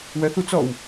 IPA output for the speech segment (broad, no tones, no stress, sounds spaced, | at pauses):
w ɜ θ u t͡s ɔ w